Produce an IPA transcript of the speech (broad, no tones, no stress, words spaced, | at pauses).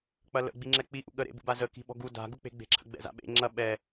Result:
k͡pɐlə̰ ɡ͡biŋ͡ǁɛk͡pi ʔṵɠə ɾḛbṵbazə ki̤ɓɔ̤ɡu da̤ ɡuk͡pe̤ɡ͡be̤ǁʰə̰ ɡ͡bɛ̰za̰ɓḛ ŋ͡ǁɐ ɓɛ